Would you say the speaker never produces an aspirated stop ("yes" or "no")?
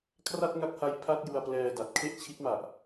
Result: no